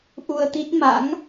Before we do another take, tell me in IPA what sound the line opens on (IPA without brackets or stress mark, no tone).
ʔ